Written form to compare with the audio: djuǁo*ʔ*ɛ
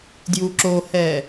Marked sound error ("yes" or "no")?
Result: yes